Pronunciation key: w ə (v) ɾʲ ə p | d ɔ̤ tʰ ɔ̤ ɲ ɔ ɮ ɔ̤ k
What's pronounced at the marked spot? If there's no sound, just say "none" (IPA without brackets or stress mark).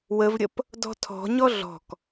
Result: v